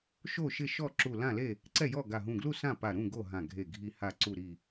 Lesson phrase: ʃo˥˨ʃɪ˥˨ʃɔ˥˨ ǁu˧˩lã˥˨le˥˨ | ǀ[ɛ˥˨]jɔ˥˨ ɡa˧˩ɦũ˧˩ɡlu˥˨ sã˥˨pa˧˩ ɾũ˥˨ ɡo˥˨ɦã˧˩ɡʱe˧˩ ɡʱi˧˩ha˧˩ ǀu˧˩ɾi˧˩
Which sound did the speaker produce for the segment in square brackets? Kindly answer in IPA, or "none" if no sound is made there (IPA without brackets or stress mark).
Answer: ɛ˥˨